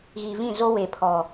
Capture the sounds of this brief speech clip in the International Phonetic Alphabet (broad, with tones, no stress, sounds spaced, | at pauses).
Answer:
ɣ i˨ v ĩ˦˨ z o˦ w e˨ pʰ ɔ˨